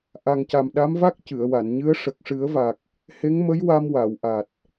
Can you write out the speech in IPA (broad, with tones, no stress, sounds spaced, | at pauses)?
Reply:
ʔ a˨˩ ŋ c a˨˩ m ɗ a˧˥ m v a˦˥ k̚ c ɨ˨˩˨ ə̯ w a˨˩˨ n ɲ ɨ˧˥ ə̯ ʂ ə˨˩ k̚ ʂ ɨ˨˩˦ ə̯ v a˨˩ k̚ | h e˧˥ ŋ m ə˧˥ j w a˧ m w a˨˩˨ w ʔ a˨˩ t̚